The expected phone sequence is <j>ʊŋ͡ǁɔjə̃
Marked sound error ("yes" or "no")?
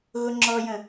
yes